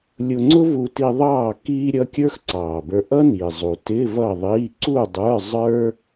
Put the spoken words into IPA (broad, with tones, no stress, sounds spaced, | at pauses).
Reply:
lʲ ʊ˧ ŋ͡ǀ ʊ˥ v u˧ t i˧ ðˤ ɑː˥˨ k iː˥ ɾʲ ʌ˧˥˧ kʲ ə˞˥ x ǀ ɑː˨˩ b ə˞˧ ʔ ʌ˥ n i˨˩ zˤ u˨˩ t ɪ˧˥˧ v ʌ˥˨ ðˤ iː˧˥˧ ǀ u˥˨ dˤ ə˞˧˥˧ zˤ ə˞˥